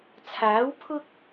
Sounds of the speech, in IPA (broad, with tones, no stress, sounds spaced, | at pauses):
t͡sʰ aː˨˥ w pʰ ʊ˥ k̚